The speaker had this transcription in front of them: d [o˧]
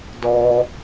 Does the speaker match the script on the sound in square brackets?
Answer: no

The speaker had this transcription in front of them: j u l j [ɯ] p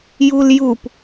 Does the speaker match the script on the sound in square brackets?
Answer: no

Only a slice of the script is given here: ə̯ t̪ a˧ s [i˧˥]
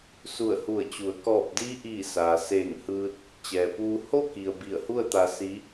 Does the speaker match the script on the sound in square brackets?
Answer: yes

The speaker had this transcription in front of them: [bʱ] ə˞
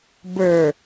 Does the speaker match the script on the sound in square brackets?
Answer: no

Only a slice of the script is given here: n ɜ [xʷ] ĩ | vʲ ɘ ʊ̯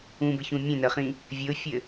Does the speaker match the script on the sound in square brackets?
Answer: no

